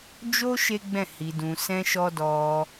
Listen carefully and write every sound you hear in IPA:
d͡ʒ o˦ ʃ e˦ ɡ͡b ɛ̃˦˨ h i˨ d ũ˨ s ɛ̃˧ ʃ ɔ˦ d ɔ˧

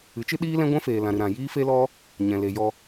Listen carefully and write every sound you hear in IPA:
ɨ˨˦ t͡ʃ ɨ˦ ɗ iː˦ l ɛ̃˦ ɡʷ ɛ̃˦ f eː˨ l ã˨ ɾ ɨ˨ ɾ ã˨ j iː˦ f e˦ l ɔ˦ | ɲ ɛ̃˨ l e˨ j ɔ˧

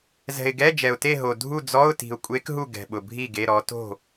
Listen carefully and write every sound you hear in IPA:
z ɛ̤˨ ɪ̯ ɡ ɛ˧˥˧ d͡ʒ ɛ˨ ʊ̯ t e˥˨ ɦ o˨ dʱ u˥˨ d͡z ɔ˧˥˧ ʊ̯ t i̤˨ ʊ̯ kʷʼ e˧˥ k ɦ u˥˨ ɡ ɛ̤˨ ɓ ʊ˨ bʱ i˥˨ ɡ e˧˥˧ ɾ ɔ˧˥ t o̤˥˨

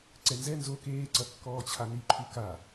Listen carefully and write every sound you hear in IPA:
ǀ ɛ n z ɛ n z o k eː ǀ ɐ kː ɔː t͡ɕʰ a n i ǃʰ u k a

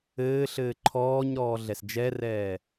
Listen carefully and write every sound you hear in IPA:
ɘː ɬ ɘː ǃʰ ɔː ɲ ɾ ɔː ɮ ɛ s d͡ʒ ɛ r ɛː

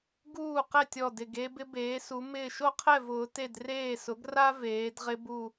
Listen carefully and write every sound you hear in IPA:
ɡ uː˥˨ q ɛ˥˨ tʲ ɔ˧˩ d ɪ˧˩ ɡ e˧ b ɪ˧ b eː˩˧ s u˩˧ m ɪː˧˩ ʃ o˥ qʰ ɛ˥˨ v ʊː˩˧ t e˥˨ d r eː˥˨ s ʊ˩˥ ɡ r a˥ v eː˩˧ d ʁ ɪ˧ b u˧˩

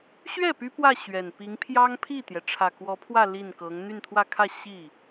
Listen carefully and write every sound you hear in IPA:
ɕ ɥ ɛ˥˩ p y˥ p w ä˥˩ ɕ ɥ ɛ˨˩ n p i˧˥ ŋ pʰ j ɑ˥ ŋ pʰ i˥˩ t̪ j ɛ˩ ʈ͡ʂʰ ä˨˩ k w ɔ˧˥ pʰ w ä˥˧ l i˥˩ n k ɤ˧˥ ŋ n̪ y˥˧ n t̪ʰ w ä˥˧ kʰ ä˥˧ ɕ i˥˩

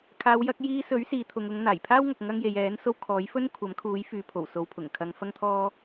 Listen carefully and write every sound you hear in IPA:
kʰ aː˨˧ w j ɐ˨˥ k̚ j iː˧ s ɵ˨˥ ɥ s iː˨˧ t̪ʰ ʊ˨ ŋ ʊ˨˧ ŋ n̪ aː˨˩ j pʰ aː˥ w ŋ ɐ˨ k̚ ŋ ɐ˧ ŋ j e˨ j ɛː˨˥ n s o˧ w kʰ ɔː˨˥ j f ɵ˥ n kʷʰ ɐ˨˥ m kʰ uː˨˥ j f yː˨ pʰ o˨˩ w s o˨˧ w pʰ ʊ˨˩ ŋ kʰ ɐ˧ ŋ f ɐ˥ ŋ t̪ʰ ɔː˥

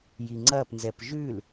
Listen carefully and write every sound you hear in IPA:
j i ŋ͡ǀ ɐ p n z ɛ p ʒ ʉ l

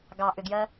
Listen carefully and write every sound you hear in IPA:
ɡ ɑ ʔ ʏ ɡ j ɜ

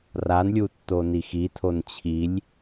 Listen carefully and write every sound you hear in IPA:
r a n lʲ u tː o n i x i tʰ o n t͡ɕʰ i lʲ

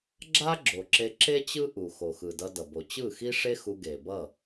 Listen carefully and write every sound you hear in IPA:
ɡ͡ǁ a˦ ɡ͡ǁ o˨ ǁ e˧ ǁ e˦ t͡ɕ ɯ˦ ʔ u˨ x o˨ x ɯ˨ d ʌ˧ d ʌ˨ b o˨ t͡ɕ ɯ˦˨ x i˦ ʂ e˦ x u˧ ɡ e˨ b ʌ˦˨

